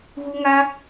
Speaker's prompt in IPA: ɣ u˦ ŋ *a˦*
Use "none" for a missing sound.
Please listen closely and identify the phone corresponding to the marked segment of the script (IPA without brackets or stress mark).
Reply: a˦